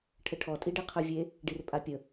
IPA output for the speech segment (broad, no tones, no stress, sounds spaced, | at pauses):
ʈʰ ə ʈʰ ɔ tʼ i ɖ i qʰ ø vʲ e | ɖ i r pʼ a pʲ ə